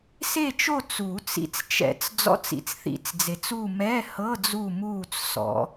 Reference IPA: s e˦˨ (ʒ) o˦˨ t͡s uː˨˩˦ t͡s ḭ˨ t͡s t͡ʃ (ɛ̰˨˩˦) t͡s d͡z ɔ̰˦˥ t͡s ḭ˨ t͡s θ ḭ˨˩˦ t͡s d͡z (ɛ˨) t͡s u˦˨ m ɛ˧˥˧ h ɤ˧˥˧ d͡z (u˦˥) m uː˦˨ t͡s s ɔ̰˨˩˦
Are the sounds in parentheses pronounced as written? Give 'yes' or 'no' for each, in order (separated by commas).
no, yes, no, no